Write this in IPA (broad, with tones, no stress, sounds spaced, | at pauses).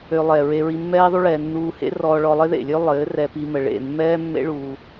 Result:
ø˧ lˠ ɛ˨ ɹ e˧ ɹ i˧ mː ɛː˦ ðˤ u˦ ɭ ɛː˧ nː uː˧ h ḛ˦ r ɔː˧ ɭ ɔ˧ lˠ ɪ˦ ð ḛ˨ lʲ ø˦ lˠ ɘː˨˦ r ɛ˧ p i˧ m ə˨ ɭ ḛ˦˨ mː ɛː˦ mː ḛ˦ ɭ uː˧